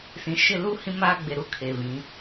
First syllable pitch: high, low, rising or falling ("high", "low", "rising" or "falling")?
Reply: low